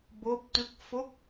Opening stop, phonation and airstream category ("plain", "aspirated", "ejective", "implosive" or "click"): plain